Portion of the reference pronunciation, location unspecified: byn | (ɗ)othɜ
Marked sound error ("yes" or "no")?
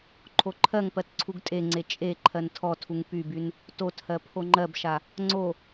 yes